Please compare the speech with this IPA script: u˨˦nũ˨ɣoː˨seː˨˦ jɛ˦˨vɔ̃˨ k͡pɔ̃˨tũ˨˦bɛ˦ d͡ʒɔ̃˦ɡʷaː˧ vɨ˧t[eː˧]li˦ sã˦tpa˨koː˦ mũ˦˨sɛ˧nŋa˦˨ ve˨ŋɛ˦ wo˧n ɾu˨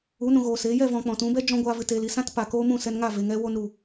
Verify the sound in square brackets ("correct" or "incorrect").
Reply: correct